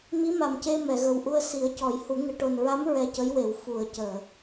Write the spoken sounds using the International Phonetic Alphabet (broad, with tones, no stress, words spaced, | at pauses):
mi˧˥ma˨˩mce˧ mɛ˨˩˨ɣə˨˩wʔu˧ə̯ si˨˩˦ə̯cɔ˨˩˦j hu˨˩˦ŋɨ˨˩ ʈo˨˩nɹa˧˥m ɹɛ˧cə˧˥j we˨˩˨wfu˨˩˨ə̯ cəː˨˩˨